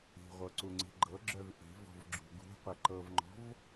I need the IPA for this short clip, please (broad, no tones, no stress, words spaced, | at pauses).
i̤ʁʷɤ ǀuŋ͡ǀi̤ɡ͡ǃɤɡ͡ǁœv ʔi̤vɔ̤v ɡ͡ǁṳɡṳqʷɛ ǃɤvŋ͡ǃɔ̤v